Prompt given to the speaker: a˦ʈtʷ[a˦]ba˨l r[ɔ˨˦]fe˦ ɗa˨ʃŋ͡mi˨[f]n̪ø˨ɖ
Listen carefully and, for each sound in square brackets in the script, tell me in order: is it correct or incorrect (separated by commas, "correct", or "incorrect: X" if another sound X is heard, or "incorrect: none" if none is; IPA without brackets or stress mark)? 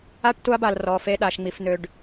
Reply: correct, correct, correct